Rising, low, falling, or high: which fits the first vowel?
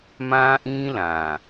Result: high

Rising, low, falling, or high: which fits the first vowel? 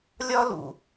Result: high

